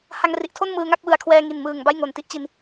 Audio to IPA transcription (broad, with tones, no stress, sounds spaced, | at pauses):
h a˧ ŋ r i˨˩ ʔ tʰ o˥˩ n m ɯː˧ ŋ a˥˩ k̚ w ɯ˨˩ a̯ kʰ w ɛː˧ ŋ i˨˩ n m ɯː˨˩ ŋ b a˥˩ j ŋ o˨˩ n t i˥˩ ʔ t͡ɕ i˧ n